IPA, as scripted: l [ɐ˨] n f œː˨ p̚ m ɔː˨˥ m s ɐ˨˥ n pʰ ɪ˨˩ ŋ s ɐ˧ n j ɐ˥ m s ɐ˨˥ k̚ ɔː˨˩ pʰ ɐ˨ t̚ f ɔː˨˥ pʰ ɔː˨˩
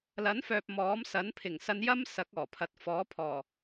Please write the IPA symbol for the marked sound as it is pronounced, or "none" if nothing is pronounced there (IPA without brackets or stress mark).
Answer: ɐ˨˥